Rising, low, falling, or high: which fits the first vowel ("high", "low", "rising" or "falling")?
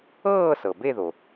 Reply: falling